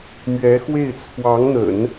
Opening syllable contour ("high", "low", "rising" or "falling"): rising